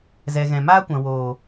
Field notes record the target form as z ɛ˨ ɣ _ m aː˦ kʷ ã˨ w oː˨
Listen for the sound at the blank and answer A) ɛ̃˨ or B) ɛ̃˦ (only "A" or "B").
A